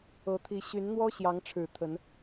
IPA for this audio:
ɤ˨˦t̪ʰi˨˦ ɕy˨˦nn̪wɔ˦ ɕjɑ˨˦ŋʈ͡ʂʰɻ̩˨˩ t̪ʰə˨˦n

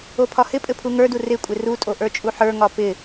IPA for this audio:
opʰɒhɪpʼɘ pʰuŋə˞du rɪkʷʼɪ rutʼo ʔə˞t͡ʃʼuħə˞ŋɒ pɪ

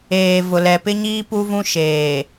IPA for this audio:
eː˨ vʊ˨lɛ˨pɪ˦ɲiː˦ pu˦vũ˦ ʃeː˨

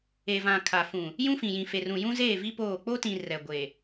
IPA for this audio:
e˨vã˨ kʰa˨fũ˨ | jũ˦fĩ˨jĩ˨fe˨ rũ˨jũ˦zeː˦˨vi˦ poː˦˨ k͡po˦tĩ˨ rɛ˨ɡʷe˨

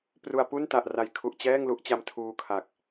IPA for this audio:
pru˧a̯ pu˥˩nta˨˩ʔra˨˩j kʰu˨˩ʔ t͡ɕɛː˥˩ŋlu˥˩ʔt͡ɕa˦˥m tʰuː˧kʰa˨˩k̚

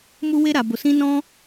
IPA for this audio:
mu˦we˦ ɾa˧bo˧sĩ˦ nɔ̃˦

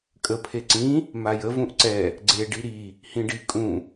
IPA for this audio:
kʼə pʰeǀĩ | majə vũʔǀɛ | ɡ͡ǀe ɖiɾi | hĩɖi kʼũ

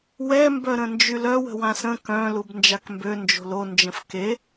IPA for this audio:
wɛ mbœɾə̃nd͡ʒylœw ə̤wãsə̃ kœ̃ lubnd͡ʒakmbø nd͡ʒo̤lo nd͡ʒə̃fke

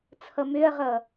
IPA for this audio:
t͡sʰʌmøɐ̯ʁʌ

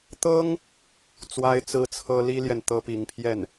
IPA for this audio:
t̪ɤ˥ŋ | t͡swa˥ɪ̯t͡sɹ̩˥t͡sʰɤ˥ li˥ljɛ˨n t̪ɤ˥pi˧˥ŋpʰjɛ˥˩n

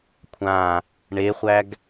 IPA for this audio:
kʷʰã | ɳeχʷæɡ

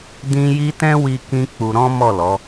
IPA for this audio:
dĩ˦ji˦ tɛ̃˦wi˧ kĩ˦k͡pu˧ ɾɔ̃˦mɔ˦˨lɔ˨˦

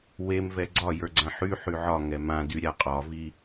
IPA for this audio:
wemvɛ ɡ͡ǀɒjə˞ ɡ͡ǀãħy ħyʕɒ ŋɛmã dyɾʲaqʼɒvi

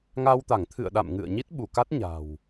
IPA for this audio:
ŋa˧wt̪a˧˩ŋt̪ʰɨ̰˧˨ə̯ɗa̰˧˨m ŋɨ̰˧˨ə̯ ɲi˦˥t̚ɓu˧˩ka˦˥t̚ ɲa̤˨˩w

